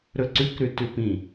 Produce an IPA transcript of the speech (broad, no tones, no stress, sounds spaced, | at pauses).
ɾ ɵ ǀ ʉ k ɾ ʉ t ʉ p ĩ